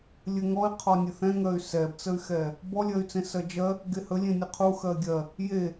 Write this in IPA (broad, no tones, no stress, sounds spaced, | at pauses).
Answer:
lʲ ɘ ŋ ɔ i̯ qʰ ɔ nʲ ɘ θ ɛ̃ ŋ ɜ y̯ s ɛ b t͡s ə y̯ x ɛ | b ɔ lʲ ɜ y̯ t͡s ẽ s ɜ d͡ʒ ɜ | ɡ e h ə lʲ ẽ nʲ ɘ qʰ u x ɜ ɡʲ ɜ | j e